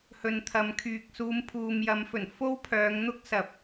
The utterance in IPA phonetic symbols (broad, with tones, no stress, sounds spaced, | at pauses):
h ɵ˨ n t̪ʰ ɐ˨ m kʰ yː˨ k̚ s uː˨˧ m pʰ uː˨ m j ɐ˨˧ m f ɵ˨˩ n f o˥ w pʰ œː˨˧ ŋ n̪ ʊ˥ k̚ s ɐ˨ p̚